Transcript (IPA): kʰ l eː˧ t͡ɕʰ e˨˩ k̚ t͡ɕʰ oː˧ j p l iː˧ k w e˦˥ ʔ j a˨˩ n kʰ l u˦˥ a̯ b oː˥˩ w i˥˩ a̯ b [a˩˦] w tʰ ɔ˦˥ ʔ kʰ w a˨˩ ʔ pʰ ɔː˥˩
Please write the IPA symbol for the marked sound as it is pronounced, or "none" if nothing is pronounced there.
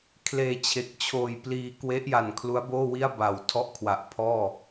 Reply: a˨˩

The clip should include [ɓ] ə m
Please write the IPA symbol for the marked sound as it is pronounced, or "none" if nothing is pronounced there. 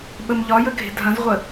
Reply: ɓ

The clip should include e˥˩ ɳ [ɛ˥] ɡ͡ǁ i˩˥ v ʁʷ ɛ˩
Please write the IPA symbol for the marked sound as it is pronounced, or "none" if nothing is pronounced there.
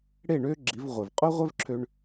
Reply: ø˥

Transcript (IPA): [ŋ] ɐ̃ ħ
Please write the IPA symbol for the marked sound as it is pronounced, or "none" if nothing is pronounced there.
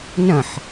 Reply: n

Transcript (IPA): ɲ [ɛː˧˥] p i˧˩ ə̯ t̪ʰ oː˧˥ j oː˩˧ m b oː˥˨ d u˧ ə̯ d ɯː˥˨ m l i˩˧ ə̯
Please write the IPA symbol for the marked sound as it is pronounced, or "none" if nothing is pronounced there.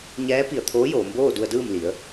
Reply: ɛː˧˥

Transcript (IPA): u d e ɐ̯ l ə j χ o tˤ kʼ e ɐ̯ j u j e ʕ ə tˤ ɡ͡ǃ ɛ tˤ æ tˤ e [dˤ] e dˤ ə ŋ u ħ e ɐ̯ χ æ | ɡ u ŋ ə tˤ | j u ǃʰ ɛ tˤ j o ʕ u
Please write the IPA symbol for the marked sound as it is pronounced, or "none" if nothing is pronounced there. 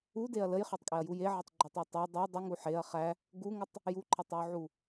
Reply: dˤ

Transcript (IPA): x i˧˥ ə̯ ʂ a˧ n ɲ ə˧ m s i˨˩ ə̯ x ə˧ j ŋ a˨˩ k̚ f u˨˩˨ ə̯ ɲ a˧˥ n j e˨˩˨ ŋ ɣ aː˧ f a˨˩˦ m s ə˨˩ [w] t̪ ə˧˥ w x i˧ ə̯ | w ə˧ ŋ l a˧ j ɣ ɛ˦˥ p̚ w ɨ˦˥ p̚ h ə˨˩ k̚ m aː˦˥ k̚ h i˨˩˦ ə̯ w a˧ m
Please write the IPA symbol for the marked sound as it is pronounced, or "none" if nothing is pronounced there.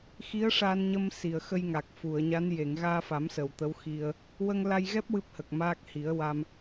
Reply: w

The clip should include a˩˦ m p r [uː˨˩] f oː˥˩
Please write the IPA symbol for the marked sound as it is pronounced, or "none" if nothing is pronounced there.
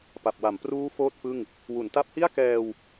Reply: uː˦˥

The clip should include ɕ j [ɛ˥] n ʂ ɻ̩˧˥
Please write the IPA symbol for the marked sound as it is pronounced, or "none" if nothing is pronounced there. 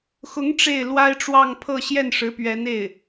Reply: ɛ˥˩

